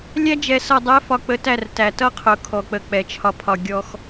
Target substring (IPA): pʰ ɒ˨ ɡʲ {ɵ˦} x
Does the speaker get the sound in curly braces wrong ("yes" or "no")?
yes